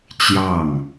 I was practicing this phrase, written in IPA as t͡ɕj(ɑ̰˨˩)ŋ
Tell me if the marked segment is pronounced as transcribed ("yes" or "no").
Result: no